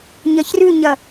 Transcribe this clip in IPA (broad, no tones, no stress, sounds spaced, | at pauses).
ɲ ɐ ç r ʉ ɲ ɐ